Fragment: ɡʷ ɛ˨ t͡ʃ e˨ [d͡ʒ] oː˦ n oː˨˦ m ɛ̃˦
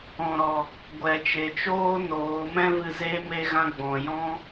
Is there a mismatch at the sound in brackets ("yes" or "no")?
yes